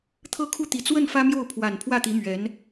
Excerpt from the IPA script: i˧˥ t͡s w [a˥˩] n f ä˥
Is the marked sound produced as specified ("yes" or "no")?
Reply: no